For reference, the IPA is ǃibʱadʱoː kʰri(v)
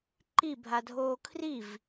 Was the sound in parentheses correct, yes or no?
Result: yes